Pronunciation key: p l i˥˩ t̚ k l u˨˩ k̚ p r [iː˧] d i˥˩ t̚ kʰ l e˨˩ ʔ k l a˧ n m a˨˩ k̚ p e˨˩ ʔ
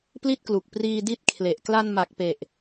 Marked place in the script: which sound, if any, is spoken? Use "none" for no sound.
iː˧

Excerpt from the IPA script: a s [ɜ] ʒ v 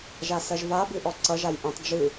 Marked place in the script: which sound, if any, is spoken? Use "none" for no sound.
ɜ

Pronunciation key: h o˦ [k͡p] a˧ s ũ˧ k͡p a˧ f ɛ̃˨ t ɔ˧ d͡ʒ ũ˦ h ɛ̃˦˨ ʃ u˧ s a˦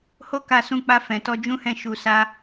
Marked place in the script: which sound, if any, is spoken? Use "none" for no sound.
k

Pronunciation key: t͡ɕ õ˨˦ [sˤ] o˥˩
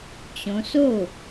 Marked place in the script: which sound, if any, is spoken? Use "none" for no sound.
s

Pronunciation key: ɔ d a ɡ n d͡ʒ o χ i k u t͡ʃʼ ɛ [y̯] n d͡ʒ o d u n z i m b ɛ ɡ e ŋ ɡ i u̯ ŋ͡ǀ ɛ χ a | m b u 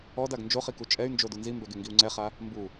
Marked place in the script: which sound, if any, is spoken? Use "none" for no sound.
y̯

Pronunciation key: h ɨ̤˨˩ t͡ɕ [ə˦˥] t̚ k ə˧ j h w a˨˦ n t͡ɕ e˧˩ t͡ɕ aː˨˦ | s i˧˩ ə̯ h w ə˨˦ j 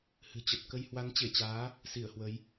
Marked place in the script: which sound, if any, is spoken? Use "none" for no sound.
ə˨˩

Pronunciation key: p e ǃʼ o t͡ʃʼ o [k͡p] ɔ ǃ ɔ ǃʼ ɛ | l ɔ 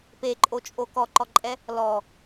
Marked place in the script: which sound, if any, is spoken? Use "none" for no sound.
k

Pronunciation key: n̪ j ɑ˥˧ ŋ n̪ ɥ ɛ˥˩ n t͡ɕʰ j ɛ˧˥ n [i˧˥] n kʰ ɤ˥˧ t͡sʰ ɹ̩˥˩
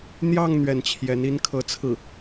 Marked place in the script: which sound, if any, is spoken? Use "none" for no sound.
i˥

